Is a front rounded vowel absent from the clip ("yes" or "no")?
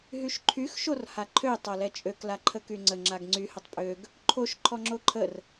no